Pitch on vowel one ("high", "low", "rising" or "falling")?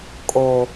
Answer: low